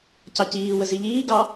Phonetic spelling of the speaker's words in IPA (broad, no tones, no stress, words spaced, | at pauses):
cɑciːwə ziʎiːɡɑ